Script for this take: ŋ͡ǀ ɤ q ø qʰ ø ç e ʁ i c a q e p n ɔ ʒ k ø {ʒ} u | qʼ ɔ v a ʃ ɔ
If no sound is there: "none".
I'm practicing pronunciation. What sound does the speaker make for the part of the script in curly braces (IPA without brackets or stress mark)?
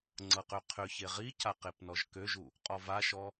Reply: ʒ